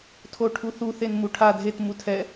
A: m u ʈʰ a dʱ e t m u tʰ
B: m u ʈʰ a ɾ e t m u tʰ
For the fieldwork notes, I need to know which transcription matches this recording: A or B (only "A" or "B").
A